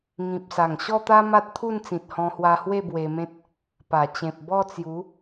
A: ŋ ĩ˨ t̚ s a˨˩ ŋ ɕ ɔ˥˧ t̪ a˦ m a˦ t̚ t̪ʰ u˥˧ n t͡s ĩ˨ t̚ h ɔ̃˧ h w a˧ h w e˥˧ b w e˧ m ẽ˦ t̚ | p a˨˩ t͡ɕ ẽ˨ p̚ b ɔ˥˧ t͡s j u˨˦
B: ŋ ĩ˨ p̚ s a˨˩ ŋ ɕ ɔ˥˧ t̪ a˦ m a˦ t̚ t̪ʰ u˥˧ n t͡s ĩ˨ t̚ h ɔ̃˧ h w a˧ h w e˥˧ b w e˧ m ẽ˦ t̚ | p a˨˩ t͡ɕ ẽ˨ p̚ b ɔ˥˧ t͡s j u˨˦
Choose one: B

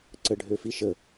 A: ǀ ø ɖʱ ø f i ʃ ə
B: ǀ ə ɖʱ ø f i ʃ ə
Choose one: B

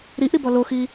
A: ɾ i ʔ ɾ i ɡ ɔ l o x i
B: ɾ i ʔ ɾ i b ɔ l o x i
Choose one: B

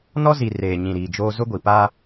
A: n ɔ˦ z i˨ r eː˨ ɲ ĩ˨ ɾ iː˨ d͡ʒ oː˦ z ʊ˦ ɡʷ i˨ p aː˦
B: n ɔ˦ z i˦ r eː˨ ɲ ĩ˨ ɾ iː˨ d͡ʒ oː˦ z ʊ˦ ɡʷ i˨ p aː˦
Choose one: A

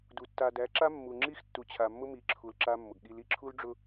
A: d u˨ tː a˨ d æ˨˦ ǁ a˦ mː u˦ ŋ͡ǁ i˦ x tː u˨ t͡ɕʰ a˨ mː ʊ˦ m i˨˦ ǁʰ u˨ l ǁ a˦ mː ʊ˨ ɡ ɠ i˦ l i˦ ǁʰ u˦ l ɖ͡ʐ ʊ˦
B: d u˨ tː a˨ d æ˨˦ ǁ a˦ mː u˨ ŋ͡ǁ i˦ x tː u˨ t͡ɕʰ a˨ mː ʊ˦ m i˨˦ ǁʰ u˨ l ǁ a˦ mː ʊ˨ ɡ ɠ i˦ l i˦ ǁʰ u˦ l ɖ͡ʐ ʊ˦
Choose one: B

